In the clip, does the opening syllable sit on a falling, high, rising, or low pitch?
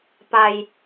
low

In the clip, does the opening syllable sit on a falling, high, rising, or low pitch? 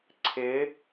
rising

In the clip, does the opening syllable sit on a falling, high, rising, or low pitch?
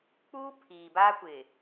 high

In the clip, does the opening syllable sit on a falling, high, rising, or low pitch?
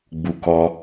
low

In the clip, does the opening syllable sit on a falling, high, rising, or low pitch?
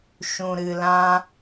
low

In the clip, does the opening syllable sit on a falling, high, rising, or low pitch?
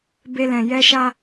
high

